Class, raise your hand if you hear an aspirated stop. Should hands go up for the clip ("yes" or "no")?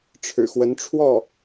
yes